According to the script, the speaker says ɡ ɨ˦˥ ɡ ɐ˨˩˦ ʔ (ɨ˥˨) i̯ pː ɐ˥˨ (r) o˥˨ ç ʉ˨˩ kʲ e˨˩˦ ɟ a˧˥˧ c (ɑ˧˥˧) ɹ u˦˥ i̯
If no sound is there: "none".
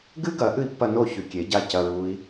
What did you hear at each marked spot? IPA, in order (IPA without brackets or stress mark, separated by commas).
ɨ˥˨, n, ɐ˧˥˧